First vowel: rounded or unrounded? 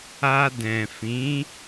unrounded